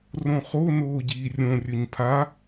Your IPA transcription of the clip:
r õ χ o n oː ɟ iː rʲ õ rʲ ɵ ɲ pʰ a

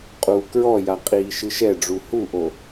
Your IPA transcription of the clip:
qʼ uː k ɹ ɔ j a qʼ iː ʃ ɨ ʃ ɛ ɖ͡ʐ u h u ʔ o

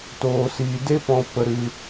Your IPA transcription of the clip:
t oː˧ s iː˧ d e˦ p ɔ̃˧ p ə˧ ɾ ɨ˧

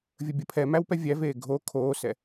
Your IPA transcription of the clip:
vʲ ə bʲ ə pʰ ɛ m æ w p ɛ vʲ æ v eː ɡʱ o kʰ oː s ɛ

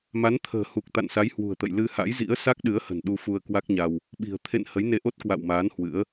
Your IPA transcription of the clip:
m a˨˦ n t̪ʰ ə̤ː˨˩ h u˨˩ k̚ t̪ a̰˧˨ n s a˨˦ j h w ṳ˨˩ ə̯ t̪ ə̰˧˨ j l ɨ˧ h a̰˧˥ j z ḭ˧˥ ə̯ s a˦˥ k̚ ɗ ɨ˨˦ ə̯ h ə̤˨˩ n ɗ u˧ f u˧ ə̯ k w a˦˥ k̚ ɲ a˧ w | ɓ i̤˨˩ ə̯ t̪ʰ ḛ˧˨ n h ə˨˦ j n e˧ ʔ o˦˥ t̚ k w a̰˧˨ w m aː˨˦ n h w ɨ̰˧˥ ə̯

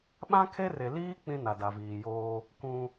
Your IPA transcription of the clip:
ɓ ã˦ kʰ e˦ r e˨ l iː˦ k͡p ĩ˦ n a˨ d a˨ v iː˨ j oː˦ | k ũ˦

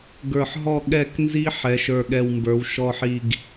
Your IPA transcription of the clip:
ɡ ə˞˧˩ ħ ɦ ɔ˥˧ ɠ ɛ˧˩ k n z i˧ ħ ɛ˩˧ ʃ ə˞˧˩ ɠ ɛ˧˩ w m b ə˞˩˧ w ʃ ɔ˧˩ ħ i˧˩ ɡ

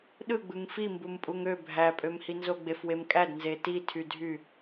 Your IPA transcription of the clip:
ɗ ɯ ɡ͡b ɯ ŋ f i m b u m pʼ u ŋ ø bʱ æ pʼ ø m h i n z o ɡ͡b e f w e m kʼ æ d n z e t i tʰ y dʱ y

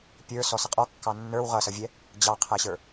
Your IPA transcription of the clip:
pʲ ə˞ s ɔ s ə qʼ ɔ kː ɑ nː ə˞ w ʁ ʌ s ʌ vʲ ɛ | d͡ʑ ɑ qʰ æ ɕ ə˞

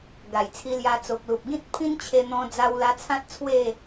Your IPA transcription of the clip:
ɡ a˨˩ j t͡sʰ i˧ l j a˧ t͡s o˨ k̚ l u˨ p̚ ɡ ĩ˦ t̚ pʰ ĩ˦ n t͡ɕʰ e˧ n̪ ɔ̃˧ d͡z a˧ w l a˧ t͡sʰ ã˦ t̚ t͡sʰ w e˥˧

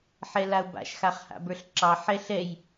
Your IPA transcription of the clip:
ħ ɛ l a ʊ̯ b a̰ ʃ x a χ h a̰ b ə˞ ɬ ǁ ɑ ħ ɛ ɬ ɛ j

